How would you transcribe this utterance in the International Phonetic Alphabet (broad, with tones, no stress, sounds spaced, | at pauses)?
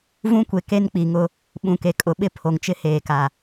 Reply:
v ũ˦ kʷ e˨ k e˦ n k͡p i˨ ŋ ʊ˦ | ɓ ũ˨ k e˨ kʼ ʊ˨˦ ɓ ɪ˦ pʰ o˨ ŋ t͡ʃ ɪ˦ h eː˨ k a˨